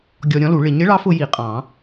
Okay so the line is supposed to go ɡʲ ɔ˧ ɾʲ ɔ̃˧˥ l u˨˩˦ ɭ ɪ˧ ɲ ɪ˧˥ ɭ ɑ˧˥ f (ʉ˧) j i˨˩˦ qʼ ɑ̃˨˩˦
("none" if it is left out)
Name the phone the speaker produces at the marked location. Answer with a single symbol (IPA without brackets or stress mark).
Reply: ʊ˧